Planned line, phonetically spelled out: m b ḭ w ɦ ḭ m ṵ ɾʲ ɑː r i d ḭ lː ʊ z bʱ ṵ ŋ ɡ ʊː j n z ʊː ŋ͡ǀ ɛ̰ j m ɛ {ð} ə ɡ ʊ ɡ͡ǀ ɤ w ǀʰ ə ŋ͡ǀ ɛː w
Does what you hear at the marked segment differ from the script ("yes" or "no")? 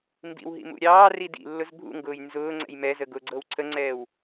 yes